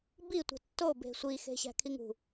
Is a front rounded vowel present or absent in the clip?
absent